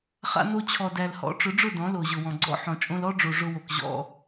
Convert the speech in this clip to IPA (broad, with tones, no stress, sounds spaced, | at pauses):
χ a̰˧ n o˧ t͡ɕʰ ɔ˨ d æ˨ l h ɔ̰˨˦ ʈ͡ʂ ʊ˨˦ ɖ͡ʐ ʊ˦˨ d ɔ̃˨˦ l o˨ ʑ ʊ˨ w ɔ̃˨ ɡ͡ǀ ɔ̰˦ ħ ɔ̃˨ t͡ʃʼ õ˧ l ɔ˦ ɖ͡ʐ o˨ ʐ ʊ˧ w o˨ k ʑ ɔ̰˧